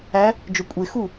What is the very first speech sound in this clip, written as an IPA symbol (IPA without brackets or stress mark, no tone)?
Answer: æ